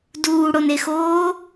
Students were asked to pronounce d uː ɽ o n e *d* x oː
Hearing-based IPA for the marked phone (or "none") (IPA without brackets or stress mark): none